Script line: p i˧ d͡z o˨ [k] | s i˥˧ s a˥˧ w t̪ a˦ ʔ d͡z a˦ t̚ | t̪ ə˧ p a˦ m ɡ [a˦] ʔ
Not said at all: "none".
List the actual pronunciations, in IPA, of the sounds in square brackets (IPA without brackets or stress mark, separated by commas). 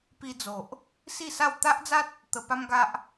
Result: ʔ, a˦